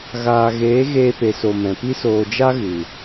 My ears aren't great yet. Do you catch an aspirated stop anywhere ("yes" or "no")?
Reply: no